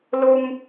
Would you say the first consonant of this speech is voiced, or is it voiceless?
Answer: voiced